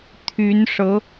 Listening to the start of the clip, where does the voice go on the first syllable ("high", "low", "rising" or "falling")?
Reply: rising